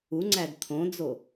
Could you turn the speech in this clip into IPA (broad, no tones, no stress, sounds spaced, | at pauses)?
u ŋ͡ǀ æ d t̪ʰ õ d͡z o